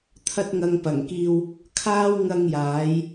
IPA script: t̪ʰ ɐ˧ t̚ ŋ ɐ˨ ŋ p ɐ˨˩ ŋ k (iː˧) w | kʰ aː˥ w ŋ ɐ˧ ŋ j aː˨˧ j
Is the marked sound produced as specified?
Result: yes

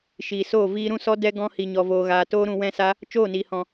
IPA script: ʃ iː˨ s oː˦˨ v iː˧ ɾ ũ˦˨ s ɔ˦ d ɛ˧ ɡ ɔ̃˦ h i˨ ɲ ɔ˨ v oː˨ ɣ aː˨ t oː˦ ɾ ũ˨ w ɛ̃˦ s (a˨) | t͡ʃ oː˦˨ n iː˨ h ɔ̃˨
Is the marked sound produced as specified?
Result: no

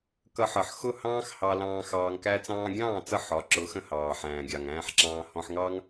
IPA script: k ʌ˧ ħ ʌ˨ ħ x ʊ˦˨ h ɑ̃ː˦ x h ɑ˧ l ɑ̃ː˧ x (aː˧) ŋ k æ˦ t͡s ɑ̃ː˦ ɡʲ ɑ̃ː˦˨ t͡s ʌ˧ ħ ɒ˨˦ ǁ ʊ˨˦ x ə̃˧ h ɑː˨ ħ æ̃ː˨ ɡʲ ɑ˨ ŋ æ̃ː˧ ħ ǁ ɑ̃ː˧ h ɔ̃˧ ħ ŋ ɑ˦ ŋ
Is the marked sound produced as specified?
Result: no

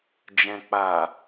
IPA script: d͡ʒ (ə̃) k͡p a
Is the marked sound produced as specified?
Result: no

